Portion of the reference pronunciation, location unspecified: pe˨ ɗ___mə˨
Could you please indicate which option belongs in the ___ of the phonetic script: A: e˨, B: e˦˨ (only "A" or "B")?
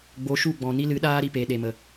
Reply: A